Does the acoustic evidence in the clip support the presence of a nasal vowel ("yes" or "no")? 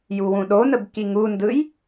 yes